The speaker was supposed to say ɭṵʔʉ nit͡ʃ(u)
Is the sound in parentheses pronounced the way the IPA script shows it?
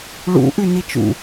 no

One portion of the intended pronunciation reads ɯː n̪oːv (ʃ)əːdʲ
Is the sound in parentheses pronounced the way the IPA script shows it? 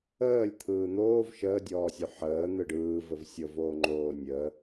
yes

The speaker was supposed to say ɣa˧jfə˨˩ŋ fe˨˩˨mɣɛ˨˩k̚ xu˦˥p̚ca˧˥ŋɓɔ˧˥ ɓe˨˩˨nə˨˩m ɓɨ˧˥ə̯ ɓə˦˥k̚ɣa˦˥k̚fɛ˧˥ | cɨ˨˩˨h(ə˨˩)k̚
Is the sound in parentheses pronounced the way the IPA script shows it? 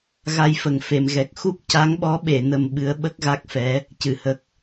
yes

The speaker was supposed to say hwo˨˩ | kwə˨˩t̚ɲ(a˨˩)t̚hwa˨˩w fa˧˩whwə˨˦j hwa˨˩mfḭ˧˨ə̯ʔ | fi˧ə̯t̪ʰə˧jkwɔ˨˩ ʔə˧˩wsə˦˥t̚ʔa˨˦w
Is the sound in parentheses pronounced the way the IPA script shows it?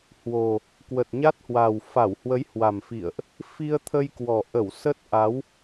no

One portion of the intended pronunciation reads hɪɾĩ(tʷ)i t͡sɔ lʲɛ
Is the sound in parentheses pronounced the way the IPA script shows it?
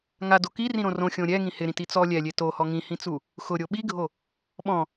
no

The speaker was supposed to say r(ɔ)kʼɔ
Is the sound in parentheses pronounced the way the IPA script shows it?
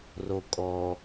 no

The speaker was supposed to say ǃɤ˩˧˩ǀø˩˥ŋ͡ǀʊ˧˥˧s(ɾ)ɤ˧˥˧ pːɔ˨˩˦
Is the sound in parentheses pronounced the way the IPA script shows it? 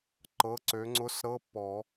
yes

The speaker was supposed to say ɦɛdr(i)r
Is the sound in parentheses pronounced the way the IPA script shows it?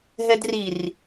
yes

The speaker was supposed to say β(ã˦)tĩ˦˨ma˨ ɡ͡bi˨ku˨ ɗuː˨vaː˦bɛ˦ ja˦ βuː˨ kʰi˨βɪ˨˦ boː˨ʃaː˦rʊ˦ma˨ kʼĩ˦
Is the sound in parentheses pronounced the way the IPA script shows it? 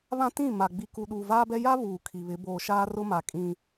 yes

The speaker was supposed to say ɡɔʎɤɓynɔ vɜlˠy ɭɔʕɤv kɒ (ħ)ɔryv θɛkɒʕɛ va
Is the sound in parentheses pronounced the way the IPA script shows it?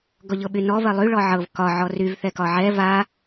no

